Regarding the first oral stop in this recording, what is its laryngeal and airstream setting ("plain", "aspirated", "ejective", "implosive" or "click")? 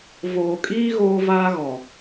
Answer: ejective